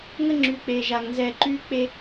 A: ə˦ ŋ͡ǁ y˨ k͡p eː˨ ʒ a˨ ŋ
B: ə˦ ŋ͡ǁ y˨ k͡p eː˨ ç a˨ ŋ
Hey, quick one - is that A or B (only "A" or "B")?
A